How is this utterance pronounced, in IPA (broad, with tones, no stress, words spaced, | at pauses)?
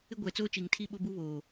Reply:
ɪ˦ɡʷɛ˨t͡soː˦t͡ʃi˨ŋ tʰi˦ɓo˦bu˦βoː˨